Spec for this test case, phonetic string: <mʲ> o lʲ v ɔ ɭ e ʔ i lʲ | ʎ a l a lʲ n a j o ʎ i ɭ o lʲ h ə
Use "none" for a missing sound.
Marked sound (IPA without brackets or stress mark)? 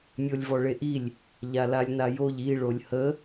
mʲ